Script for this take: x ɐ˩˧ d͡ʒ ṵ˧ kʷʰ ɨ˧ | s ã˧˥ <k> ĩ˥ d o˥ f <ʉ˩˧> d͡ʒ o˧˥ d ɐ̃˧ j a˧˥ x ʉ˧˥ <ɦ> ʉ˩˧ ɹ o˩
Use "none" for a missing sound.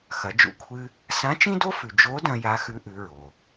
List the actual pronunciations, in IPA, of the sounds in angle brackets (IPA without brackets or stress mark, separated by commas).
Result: t͡ʃ, ʉ˩, ʔ